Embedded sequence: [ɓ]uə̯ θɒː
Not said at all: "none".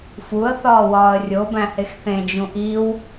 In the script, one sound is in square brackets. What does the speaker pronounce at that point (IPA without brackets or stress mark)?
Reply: f